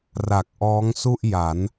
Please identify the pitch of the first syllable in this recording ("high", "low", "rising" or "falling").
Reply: low